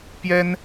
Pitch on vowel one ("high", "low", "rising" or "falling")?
high